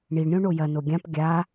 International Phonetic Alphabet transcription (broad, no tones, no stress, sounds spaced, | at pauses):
ɳ i ɳ ɾʲ õ ɳ o j ɐ n o ɡʲ ã p ɡʲ a